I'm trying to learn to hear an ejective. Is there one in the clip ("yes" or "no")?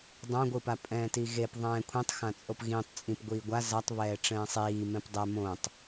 yes